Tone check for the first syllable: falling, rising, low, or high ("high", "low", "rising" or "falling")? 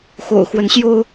low